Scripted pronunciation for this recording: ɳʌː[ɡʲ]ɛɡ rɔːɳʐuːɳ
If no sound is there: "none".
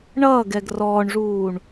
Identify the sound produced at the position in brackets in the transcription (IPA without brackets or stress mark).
ɡ